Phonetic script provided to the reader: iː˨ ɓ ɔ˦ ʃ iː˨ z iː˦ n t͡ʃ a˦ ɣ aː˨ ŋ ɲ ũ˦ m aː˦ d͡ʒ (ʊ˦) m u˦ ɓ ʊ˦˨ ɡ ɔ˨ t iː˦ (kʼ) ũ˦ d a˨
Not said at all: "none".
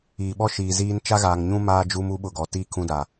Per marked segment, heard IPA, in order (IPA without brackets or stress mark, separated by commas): u˦, kʰ